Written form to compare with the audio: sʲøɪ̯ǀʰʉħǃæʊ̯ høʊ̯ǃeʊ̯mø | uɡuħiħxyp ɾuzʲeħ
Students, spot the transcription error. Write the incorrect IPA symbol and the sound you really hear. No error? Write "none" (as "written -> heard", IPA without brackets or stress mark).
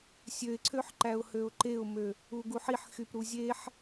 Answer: ʉ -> ø